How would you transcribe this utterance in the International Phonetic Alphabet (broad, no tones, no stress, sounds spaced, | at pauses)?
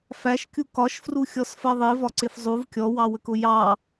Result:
f æ ʃ kʲ u k ɒ ʃ f r u xʲ ɔ s f ɜ ðˤ i v ɒ ǀ ɪ f zˤ u v kʲ ɔ w ɑ w ə k ʊ j ɑ